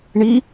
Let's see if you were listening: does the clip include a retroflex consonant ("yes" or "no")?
yes